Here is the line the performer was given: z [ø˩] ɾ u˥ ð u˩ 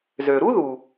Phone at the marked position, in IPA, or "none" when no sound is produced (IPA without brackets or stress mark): ø˩